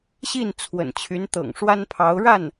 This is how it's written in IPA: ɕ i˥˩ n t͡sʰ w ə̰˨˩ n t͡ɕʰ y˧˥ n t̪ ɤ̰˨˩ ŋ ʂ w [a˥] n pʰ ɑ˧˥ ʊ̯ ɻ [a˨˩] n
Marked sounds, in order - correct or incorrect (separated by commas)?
correct, incorrect